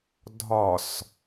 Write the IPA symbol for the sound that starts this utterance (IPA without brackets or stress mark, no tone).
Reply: dʱ